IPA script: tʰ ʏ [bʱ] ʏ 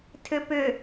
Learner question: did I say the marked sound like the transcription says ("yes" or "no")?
no